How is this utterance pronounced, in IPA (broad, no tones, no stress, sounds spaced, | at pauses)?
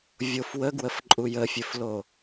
vʲ o f w ə ɡ w ə f ǃʼ u j ə fʲ ɵ f l o